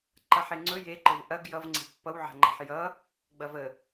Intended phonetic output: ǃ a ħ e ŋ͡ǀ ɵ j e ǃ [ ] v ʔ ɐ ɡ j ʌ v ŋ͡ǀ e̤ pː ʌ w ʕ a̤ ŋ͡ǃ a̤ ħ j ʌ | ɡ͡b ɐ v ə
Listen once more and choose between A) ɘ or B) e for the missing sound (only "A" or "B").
A